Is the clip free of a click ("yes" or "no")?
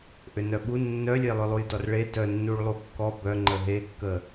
no